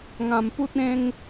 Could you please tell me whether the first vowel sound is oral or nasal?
nasal